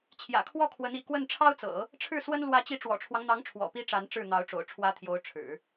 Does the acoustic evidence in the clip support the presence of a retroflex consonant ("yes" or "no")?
yes